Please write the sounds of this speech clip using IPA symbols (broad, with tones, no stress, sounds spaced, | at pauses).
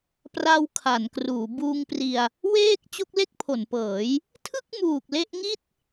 p r a˧ w kʰ a˩˦ n k r uː˩˦ b uː˧ ŋ p r i˧ a̯ | w eː˥˩ k̚ t͡ɕ o˦˥ k̚ l e˥˩ k̚ pʰ o˩˦ n p ɤː˩˦ j | tʰ ɯ˥˩ k̚ m uː˨˩ k̚ l e˦˥ ʔ ŋ i˥˩ t̚